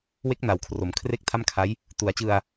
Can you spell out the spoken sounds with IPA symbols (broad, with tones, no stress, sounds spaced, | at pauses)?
w e˦˥ k̚ n a˩˦ w kʰ r o˩˦ m kʰ r e˥˩ k̚ tʰ a˥˩ m kʰ a˦˥ j | t u˩˦ a̯ t͡ɕ ɯ˧ a̯